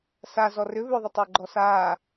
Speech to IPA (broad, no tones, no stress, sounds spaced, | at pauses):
s a z ɔ r ʏ β ʏ ðˤ ɪ tˤ ʏː ɡ͡ǃ ɔ s aː